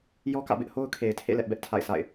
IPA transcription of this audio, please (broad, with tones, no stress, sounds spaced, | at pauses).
j ɔ˦ k ä̰˦˨ b ɪ˦ ʔ h o˦ ʊ̯ kʰ e˨ ɪ̯ tʰ ḛ˦˨ l ɛ˦ ʔ b ɛ˦ ʔ tʰ a̰˦˨ ɪ̯ s a̰˦˨ ɪ̯